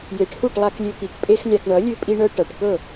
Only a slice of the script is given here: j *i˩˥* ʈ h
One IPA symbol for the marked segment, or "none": e˩˥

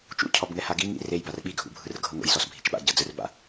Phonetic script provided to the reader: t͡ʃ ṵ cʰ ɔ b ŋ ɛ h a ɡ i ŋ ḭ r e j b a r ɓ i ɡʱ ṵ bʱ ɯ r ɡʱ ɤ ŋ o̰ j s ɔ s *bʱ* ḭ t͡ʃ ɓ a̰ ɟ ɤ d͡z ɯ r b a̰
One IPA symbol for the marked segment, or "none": bʱ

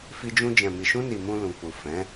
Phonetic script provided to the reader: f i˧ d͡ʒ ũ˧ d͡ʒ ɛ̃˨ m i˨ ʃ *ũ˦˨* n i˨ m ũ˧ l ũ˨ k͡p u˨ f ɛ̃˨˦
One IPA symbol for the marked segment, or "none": ũ˧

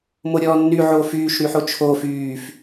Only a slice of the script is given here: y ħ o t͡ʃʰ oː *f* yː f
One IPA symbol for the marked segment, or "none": f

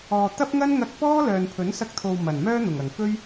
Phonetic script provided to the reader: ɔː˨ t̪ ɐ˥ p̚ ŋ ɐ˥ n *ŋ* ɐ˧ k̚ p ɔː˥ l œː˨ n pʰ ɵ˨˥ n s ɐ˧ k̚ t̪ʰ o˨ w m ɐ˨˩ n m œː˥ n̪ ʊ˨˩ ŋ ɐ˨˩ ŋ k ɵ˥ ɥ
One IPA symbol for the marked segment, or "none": ŋ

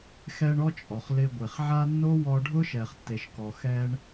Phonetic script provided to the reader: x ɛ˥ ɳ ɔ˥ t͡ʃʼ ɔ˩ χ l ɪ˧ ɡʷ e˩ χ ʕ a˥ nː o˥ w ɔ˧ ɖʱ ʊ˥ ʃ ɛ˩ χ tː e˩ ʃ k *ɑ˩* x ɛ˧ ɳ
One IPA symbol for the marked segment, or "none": ɔ˩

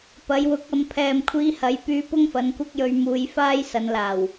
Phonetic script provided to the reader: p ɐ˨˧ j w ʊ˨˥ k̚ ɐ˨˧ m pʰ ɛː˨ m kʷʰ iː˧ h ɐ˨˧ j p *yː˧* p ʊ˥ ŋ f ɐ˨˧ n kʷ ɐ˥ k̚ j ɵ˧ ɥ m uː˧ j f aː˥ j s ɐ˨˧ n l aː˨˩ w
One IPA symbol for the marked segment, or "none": yː˧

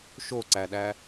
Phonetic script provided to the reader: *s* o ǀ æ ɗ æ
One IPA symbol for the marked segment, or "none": ʃ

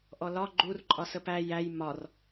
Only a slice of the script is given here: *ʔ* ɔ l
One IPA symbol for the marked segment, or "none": ʔ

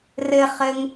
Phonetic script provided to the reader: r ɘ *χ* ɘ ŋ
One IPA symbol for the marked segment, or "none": χ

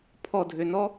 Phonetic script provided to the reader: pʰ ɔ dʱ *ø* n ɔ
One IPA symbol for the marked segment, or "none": ø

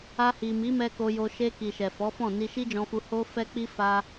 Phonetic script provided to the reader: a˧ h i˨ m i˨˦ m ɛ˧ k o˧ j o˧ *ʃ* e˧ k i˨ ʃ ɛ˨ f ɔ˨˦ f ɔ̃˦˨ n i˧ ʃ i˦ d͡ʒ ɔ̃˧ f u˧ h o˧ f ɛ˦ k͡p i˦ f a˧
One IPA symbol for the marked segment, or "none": ʃ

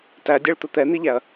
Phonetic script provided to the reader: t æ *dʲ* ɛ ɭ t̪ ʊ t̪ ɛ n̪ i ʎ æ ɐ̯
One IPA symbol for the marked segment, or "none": dʲ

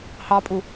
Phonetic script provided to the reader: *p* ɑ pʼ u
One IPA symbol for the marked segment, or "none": h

